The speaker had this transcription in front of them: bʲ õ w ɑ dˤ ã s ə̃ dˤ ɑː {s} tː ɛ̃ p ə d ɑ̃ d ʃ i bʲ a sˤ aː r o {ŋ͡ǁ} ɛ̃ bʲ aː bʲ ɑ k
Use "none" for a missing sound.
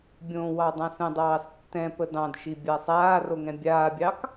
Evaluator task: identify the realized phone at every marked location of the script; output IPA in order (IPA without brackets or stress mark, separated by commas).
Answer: s, ŋ